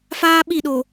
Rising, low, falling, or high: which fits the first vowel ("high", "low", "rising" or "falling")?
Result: high